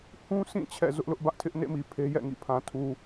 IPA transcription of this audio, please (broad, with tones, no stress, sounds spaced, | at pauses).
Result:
h ũ˦ sʰ ĩ˦˨ t͡ɕʰ ɛ̰˦˨ z ʊ˦ ʔ l ʊ˦ ʔ b ä˦ ʔ tʰ ɪ˦ ʔ n ḛ˦˨ m i˨ pʰ e˦ j ɛ̰˦˨ ŋ ḭ˦˨ pʰ ã˨ tʰ u˨